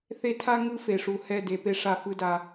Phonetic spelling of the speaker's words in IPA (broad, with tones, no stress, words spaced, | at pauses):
θe˦ tʰa˦ ŋɯ˦fe˨ʂu˨ hɛ˦˨de˨pe˦ʂa˦˨ fɯ˦da˦